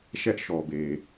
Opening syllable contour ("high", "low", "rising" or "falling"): high